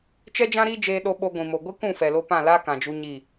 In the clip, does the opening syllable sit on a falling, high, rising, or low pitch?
high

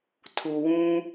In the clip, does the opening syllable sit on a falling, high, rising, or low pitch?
low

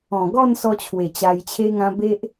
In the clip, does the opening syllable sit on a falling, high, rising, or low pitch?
low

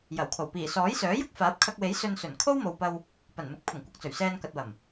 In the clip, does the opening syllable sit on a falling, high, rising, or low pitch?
low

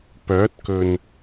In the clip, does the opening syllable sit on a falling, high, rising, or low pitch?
rising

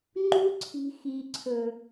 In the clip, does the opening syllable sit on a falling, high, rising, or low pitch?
high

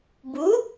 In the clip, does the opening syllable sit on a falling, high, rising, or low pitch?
rising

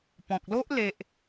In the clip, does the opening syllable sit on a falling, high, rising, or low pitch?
low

